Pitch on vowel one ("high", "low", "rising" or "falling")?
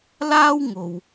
high